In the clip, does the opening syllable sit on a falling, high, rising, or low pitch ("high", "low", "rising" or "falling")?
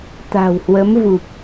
low